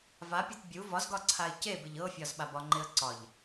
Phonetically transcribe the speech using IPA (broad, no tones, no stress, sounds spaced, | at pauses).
v a pʲ ɒ t bʲ u v ɒ z ɡ ɒ ǀʰ a ɪ̯ c e b ɪ ʎ ɤ fʲ ɒ z ɓ a b ɒ ŋ͡ǃ ɪ ə̯ ǀ ɒ ʎ